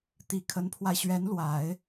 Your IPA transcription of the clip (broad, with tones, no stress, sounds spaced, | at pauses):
t̪ i˨˩ kʰ ə˧˥ n pʰ w a˧ ɪ̯ ɕ ɥ ɛ˧˥ n l w a˨˩˦ ɪ̯